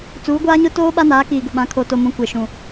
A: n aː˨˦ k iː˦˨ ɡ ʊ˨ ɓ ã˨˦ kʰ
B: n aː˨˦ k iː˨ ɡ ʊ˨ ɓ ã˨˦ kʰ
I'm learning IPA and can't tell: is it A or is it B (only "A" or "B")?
B